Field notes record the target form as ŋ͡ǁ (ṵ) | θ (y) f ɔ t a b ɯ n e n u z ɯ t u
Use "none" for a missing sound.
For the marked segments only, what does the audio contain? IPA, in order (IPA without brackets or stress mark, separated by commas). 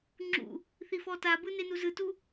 ṵ, i